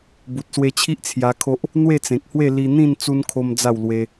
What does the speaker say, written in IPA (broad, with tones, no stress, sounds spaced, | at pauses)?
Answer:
b u˨ t̚ s w e˧ t͡ɕʰ i˦ ʔ t͡sʰ j a˧ kʰ o˦ ʔ | n̪ w e˥˧ t͡s ẽ˨ k̚ h w e˥˧ l i˧ n̪ ĩ˥˧ n t͡s u˦ n kʰ o˦ m d͡z a˥˧ w l w e˧